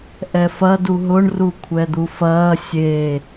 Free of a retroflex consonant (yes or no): no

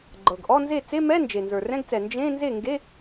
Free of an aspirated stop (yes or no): yes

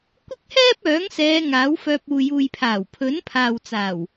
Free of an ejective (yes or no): yes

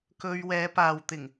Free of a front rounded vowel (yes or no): yes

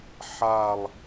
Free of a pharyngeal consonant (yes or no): no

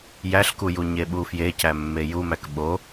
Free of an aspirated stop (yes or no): yes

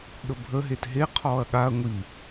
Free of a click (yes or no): yes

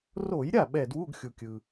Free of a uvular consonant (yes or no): yes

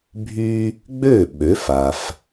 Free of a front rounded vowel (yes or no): no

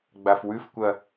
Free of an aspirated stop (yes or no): yes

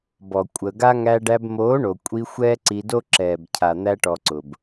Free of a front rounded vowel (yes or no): yes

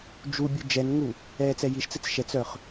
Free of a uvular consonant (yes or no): no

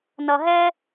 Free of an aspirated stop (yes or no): yes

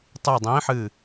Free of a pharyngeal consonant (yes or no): no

